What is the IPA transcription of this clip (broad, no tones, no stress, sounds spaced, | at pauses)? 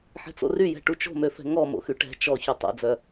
ħ ɛ̤ t͡s o̰ r y j ɛ̤ ʈ u t͡ʃ o̤ m ø f ɛ̤ ŋ ɔ m o̰ x y ʈ ɛ̤ t͡ʃ ɔ ç y tˤ o̰ d͡z œ